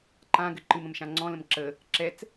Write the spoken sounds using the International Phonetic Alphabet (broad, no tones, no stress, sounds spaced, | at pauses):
ǃ ã ɡ ɘ ǃ ɨ m ə̃ m ʃ ã ŋ͡ǀ ɔ̃ l ə̃ m ǁ ə | ǁ ɛ t͡s